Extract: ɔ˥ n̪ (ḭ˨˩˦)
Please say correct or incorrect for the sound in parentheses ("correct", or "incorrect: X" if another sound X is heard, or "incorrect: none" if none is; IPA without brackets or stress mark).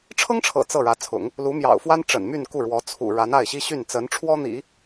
correct